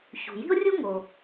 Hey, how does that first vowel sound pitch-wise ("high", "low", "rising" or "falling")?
low